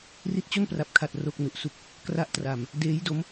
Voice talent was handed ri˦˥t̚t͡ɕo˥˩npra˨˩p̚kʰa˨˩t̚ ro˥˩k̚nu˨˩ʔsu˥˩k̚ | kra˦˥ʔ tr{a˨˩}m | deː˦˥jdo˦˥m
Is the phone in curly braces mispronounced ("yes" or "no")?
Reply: no